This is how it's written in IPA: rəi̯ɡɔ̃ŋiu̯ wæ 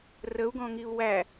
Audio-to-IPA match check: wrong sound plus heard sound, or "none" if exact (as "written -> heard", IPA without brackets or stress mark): i̯ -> u̯